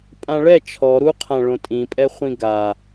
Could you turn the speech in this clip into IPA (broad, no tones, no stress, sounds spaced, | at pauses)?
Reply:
pʼ ã ɭ ɛ t͡ʃʰ ɔ ɾ u qʰ ã ɭ õ tʼ ĩ pʼ ɛ χʷ ĩ ɡ a